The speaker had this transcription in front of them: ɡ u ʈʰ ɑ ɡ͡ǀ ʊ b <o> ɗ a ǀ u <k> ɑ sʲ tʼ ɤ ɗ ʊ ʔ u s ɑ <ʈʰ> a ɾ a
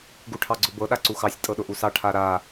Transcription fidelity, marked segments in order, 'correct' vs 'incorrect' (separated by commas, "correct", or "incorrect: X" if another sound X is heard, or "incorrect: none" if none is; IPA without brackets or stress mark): incorrect: ɤ, incorrect: x, correct